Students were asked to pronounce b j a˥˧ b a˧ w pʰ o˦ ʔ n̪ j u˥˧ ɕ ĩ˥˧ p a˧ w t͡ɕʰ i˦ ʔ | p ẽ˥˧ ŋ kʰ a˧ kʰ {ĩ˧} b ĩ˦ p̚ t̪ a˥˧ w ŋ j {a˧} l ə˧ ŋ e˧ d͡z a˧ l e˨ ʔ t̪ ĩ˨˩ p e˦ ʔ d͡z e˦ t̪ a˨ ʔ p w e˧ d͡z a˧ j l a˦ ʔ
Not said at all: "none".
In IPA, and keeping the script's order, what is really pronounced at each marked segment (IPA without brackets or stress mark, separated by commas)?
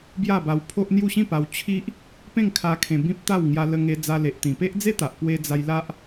ẽ˧, a˧